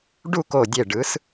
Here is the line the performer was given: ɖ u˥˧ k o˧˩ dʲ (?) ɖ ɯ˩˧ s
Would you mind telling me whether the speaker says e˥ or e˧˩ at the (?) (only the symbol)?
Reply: e˧˩